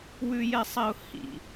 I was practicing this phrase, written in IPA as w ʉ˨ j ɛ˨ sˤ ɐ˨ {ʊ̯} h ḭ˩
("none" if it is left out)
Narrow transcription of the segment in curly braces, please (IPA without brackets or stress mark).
ʊ̯